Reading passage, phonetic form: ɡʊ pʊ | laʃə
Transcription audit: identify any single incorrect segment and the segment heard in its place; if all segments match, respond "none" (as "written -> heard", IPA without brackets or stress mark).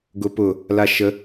none